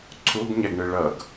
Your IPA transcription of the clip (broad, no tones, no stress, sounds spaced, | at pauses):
ǀʰ u ɡ ɲ ɛ ɡ ɳ ɯ ɭ ʌ ɡ